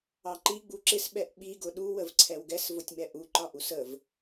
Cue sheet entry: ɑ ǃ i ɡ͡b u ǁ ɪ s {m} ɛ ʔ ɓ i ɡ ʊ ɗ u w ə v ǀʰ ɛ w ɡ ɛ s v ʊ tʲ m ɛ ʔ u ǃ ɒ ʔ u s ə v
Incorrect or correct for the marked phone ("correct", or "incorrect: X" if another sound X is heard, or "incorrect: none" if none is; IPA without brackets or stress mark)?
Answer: incorrect: ɓ